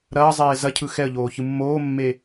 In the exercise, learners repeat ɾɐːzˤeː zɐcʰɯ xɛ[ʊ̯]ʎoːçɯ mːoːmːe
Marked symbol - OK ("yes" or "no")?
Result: no